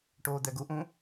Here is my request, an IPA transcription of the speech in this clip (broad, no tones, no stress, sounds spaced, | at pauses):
ʈ oː d̪ ɛ ɡ u ʔ ũ